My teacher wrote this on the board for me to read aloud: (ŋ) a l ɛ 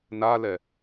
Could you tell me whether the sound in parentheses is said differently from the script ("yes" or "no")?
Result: yes